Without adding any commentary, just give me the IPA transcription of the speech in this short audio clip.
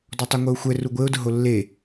d ɔ tˤ e ŋʷ ɛ ʊ̯ xʷ ɛ r u ɡʷ e ʊ̯ d ʊ ɦ o lː e

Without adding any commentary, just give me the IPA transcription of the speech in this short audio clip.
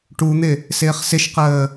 ʈ u n̪ ɪ | s ɪː χ s ɪ ʃ q əː

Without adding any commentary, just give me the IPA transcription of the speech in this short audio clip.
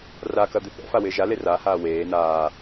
r a k ɐ d̪ ɪ θ ɛ̰ f a w ɪː ʒ a l e r a h aː w eː n aː

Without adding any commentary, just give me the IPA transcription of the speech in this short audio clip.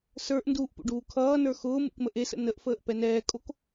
s ə˞ ʔ n d uː ʔ p ṵ ɖ uː kʰ ʌː n ə˞ x ʊː m ṵ k m ə ʔ e s ə̰ n ə ʔ f əː ʔ p ɛ n ɛː kʼ o k

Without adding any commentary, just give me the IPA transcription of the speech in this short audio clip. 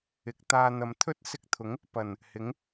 ɪ˨˥ k̚ t̪ aː˧ n̪ ɐ˨ m t̪ʰ ɵ˥ t̚ s ɪ˧ k̚ t̪ʰ ʊ˨˥ ŋ | p ɐ˨˩ n | h ɪ˨˥ ŋ

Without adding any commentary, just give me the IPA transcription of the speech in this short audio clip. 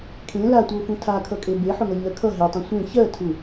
kʰ ẽ l a tʷ ʌ ʊ̯ f ũ tʰ a kʰ ʌ kʼ e b e ħ ʊ ŋ ʌ ɲ ɜ kʰ ʌ ɦ e tˤ ũ sʷ ẽ ç ɜ tʰ u

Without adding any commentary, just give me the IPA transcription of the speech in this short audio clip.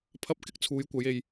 pʰ ɐ˧ p̚ k ɪ˥ k̚ t͡sʰ uː˨˧ j kʷ ɐ˨˧ j e˧ j

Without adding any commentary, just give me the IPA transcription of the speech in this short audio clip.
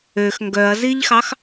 ø x ŋ ɡ œ ɐ̯ z i ʎ x ɑ x

